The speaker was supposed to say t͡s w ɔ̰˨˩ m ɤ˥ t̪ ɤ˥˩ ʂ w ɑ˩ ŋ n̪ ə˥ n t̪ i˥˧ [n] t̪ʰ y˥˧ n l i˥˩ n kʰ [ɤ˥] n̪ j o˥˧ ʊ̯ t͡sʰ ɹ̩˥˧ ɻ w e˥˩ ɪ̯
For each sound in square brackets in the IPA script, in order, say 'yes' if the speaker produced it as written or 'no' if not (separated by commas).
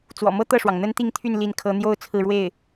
no, yes